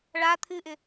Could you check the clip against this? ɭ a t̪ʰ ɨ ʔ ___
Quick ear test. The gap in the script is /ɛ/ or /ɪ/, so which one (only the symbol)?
ɪ